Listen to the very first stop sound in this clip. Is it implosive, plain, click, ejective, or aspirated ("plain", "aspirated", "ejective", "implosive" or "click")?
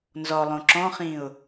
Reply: click